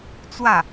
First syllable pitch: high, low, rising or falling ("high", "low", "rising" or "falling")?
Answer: falling